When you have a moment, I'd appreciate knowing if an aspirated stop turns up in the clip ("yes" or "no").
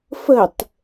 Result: no